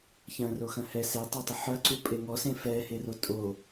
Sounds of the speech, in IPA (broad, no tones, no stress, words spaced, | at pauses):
çɐ̃roxɐ̃ hɛ setˤetˤo ħɐǀupʼe ŋɔsẽ fɛhero tʼo